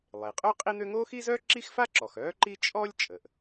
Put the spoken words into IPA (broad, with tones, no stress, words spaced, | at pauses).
lˠe˩qʼœ˥ qʼi˥n̪ø˥ ŋo˥xi˥zœ˥ ǁi˥xfa˥ǁɔ˩x œː˥ǃi˥ t͡ʃʼɔ˥lʲ t͡ʃʼə˩ʔ